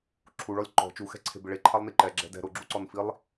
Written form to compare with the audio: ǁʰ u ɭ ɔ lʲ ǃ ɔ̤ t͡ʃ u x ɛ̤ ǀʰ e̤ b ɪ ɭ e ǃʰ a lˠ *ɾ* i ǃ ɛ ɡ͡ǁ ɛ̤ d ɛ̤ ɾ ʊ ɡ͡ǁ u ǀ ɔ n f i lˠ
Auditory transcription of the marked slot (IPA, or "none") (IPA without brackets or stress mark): n